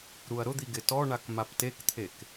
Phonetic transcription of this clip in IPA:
ɾuɐ̯ɾʊd̪i ɡɪtɔɳak maptekt̪ʰek

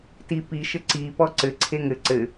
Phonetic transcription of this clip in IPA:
tipi ʃɘǀi pɔǀɘ ǀʰeŋɘ ǀɘ

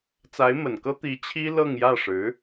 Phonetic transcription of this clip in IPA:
t͡sa˧˥ɪ̯mə˨˩nkɤ˥ t̪i˧˥ t͡ɕʰi˥lɤ˥˧ŋjä˥˩ʂɻ̩˧˥

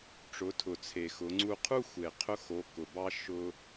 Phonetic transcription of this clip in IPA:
ʈ͡ʂʊ˩˧tʰʊ˩t͡sʰe˩ xʊ˩˧ŋ͡ǀu˧qʰu˥ xʷe˩qʰʊ˧xo˩˧ kʊ˩bɑ˧ ʃʊ˧

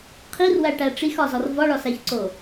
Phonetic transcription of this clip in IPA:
qʰirwæʈæ ʈ͡ʂixɒzɒr vɒɭɒsæçǀo

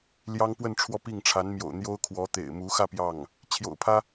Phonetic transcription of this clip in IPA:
ljɑ˥ŋpwə˥˧n ʈ͡ʂʰwɔ˥˧pi˥˩ŋʈ͡ʂʰa˧˥nmjo̰˨˩ʊ̯ n̪jo˥ʊ̯kʰwɔ˧˥ t̪ḛ˨˩ɪ̯mu˧˥xä˥˧ pjɑ˥˩ŋ | t͡ɕʰjo̰˨˩ʊ̯pʰä˥

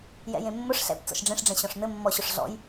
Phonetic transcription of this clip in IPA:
jɛ̰jẽmːʊʂ ɬɛ̰p t͡sɔ̰ʃɖ͡ʐẽʂɖ͡ʐɛ̃ ɕɔ̃ʂn̪ɘmːɔɕʊʂ ɮɔ̰j

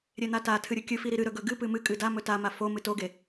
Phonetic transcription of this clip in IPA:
ɾʲen̪atatʰɨ ɾʲɨkʲɨfi ɾiɾɨɾɵ ɡɵɡɨpɨ mɨ kʼɨdamɵ tama fomɨ toɡe

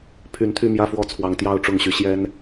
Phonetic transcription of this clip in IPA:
pʰy˨˦n t̪ʰy˥˨mjä˥˨fwɔ˥˨t͡sʰwɑ˨˦ŋ t̪jɑ˥˨ʊ̯ʈ͡ʂʊ˥˨ŋɕy˨˦ ɕjɛ˦n

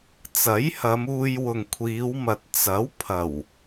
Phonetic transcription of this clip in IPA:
t͡sɐ˨˥jhɐ˨˧m uː˧jwʊ˨ŋkʷʰiː˨˧wmɐ˨t̚ t͡sɐ˨˥wpʰɐ˨˩w

